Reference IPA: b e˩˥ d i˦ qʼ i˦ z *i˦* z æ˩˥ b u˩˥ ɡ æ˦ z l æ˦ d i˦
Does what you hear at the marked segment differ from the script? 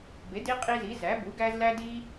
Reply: yes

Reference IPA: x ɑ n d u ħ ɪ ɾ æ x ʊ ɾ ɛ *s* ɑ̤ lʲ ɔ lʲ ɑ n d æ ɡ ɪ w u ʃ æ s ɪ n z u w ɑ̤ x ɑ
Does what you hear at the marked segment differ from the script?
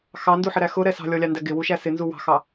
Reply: no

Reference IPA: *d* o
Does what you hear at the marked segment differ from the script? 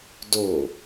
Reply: no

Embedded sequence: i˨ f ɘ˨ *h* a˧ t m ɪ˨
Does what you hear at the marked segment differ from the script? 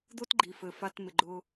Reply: yes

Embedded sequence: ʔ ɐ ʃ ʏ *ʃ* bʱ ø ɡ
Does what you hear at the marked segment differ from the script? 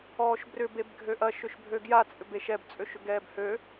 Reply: no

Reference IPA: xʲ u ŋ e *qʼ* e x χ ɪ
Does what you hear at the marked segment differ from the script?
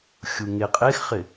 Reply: no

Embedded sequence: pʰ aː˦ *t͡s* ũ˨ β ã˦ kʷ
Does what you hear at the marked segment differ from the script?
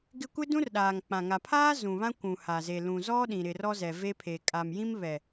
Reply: yes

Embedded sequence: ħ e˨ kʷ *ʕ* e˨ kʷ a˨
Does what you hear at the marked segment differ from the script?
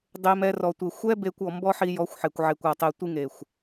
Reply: no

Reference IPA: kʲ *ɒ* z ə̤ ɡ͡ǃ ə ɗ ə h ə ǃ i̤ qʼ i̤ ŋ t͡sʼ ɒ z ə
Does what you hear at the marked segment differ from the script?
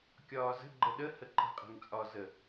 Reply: yes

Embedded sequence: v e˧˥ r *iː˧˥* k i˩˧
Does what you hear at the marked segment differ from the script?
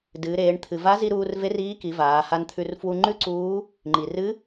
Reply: no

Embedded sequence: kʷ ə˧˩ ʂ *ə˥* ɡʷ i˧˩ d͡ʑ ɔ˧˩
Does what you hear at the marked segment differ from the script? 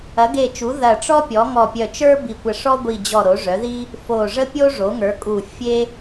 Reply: yes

